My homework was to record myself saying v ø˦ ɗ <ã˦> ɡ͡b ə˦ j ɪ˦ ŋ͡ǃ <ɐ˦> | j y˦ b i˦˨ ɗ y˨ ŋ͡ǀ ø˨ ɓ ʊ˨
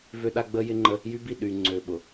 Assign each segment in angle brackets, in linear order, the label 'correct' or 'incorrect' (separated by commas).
incorrect, incorrect